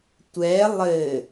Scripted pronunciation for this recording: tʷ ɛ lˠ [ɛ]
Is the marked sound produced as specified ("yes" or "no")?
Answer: no